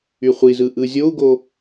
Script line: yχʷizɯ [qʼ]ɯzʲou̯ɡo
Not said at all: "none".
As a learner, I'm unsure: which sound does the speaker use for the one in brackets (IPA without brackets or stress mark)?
ʔ